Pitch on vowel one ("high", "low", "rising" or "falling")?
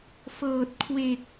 low